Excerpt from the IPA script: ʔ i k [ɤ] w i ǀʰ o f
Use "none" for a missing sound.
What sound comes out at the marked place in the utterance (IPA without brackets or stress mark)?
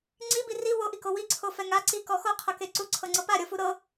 o